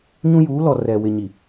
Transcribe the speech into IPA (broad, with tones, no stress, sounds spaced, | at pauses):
ɲ ũ˦ j uː˨˦ l ɔ˨ r ɛ˨ w ɪ˨ ɲ i˨